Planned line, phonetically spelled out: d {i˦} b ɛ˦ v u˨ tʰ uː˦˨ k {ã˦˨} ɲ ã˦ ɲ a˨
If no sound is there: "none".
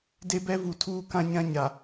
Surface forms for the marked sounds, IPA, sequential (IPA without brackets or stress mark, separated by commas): e˦, ã˦